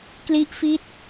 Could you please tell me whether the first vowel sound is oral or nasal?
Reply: oral